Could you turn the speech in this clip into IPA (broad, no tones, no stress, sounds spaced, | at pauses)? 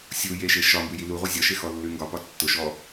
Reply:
sʲ u j e ʃ e ʃ ɒ m b ʉ j i l u ʁʷ ɛ zʲ ɒ ʃ e x ɔ lː ʉ ŋ ɡ ɒ p ɒ tː ʊ ʃ ɔ